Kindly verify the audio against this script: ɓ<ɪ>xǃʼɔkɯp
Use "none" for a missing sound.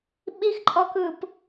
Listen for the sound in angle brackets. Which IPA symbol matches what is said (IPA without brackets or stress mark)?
i